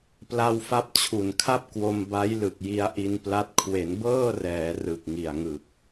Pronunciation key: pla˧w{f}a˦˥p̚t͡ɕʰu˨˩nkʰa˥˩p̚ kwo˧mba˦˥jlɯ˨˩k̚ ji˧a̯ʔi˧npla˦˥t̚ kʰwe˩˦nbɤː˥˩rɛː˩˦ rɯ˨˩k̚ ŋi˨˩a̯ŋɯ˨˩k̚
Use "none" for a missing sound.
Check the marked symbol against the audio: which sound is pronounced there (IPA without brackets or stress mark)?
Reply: f